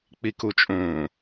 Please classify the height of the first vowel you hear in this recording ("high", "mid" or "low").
high